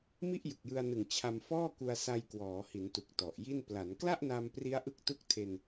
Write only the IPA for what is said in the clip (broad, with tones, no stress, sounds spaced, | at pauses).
m i˥˩ ʔ j ɯ˨˩ k̚ j ɯ˧ a̯ n ɯ˨˩ ŋ t͡ɕʰ a˧ m f ɔː˥˩ k u˧ a̯ s a˧ j k w ɔː˩˦ h i˩˦ n t u˨˩ k̚ t ɔ˨˩ ʔ j i˥˩ n p l a˩˦ n k l a˥˩ ʔ n a˧ m p r i˦˥ a̯ ʔ ɯ˦˥ k̚ t u˦˥ k̚ tʰ e˧ n